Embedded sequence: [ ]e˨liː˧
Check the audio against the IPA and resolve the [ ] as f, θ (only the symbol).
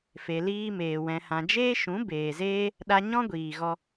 f